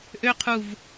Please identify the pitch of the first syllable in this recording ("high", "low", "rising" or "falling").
high